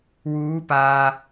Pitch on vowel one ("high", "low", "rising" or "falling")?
rising